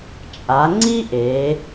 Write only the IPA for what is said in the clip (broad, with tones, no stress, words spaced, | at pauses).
t͡ʃʼa˩˧ŋ͡ǀi˥ ʔe˩˧